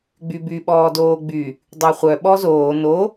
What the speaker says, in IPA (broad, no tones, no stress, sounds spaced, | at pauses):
ɡ͡b y b y ɓ ɔː d oː ɡ͡b y | dˤ y χʷ œ ɓ ɔ z oː n o